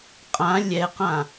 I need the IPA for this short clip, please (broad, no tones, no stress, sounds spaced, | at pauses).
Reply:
qʼ ã lʲ ɛ q ã